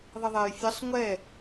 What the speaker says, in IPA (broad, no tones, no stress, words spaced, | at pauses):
ðˤəðˤɛj fʲəsˤ ŋʷɛ